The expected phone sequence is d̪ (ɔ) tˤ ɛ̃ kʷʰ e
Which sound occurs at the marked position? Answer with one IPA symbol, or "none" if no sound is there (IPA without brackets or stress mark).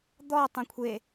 ɔ